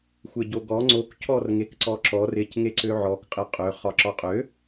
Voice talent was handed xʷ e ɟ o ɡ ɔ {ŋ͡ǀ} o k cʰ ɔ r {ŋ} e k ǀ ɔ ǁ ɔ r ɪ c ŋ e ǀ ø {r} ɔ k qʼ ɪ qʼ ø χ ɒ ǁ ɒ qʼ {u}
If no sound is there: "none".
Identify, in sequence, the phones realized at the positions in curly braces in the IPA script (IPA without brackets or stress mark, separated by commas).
ŋ͡ǀ, ŋ, ʕ, ø